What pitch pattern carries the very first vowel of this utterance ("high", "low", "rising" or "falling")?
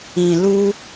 low